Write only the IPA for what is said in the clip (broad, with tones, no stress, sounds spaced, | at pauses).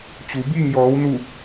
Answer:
t͡ɕ u˩˧ b iː˥˨ ŋ j ɔː˩˧ w n u˧˩